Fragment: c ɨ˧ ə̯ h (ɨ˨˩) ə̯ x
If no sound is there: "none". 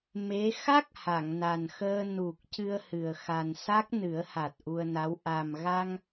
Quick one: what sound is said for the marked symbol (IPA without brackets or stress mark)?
ɨ˨˩